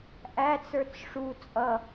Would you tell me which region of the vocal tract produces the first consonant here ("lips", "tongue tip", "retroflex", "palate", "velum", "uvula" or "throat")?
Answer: throat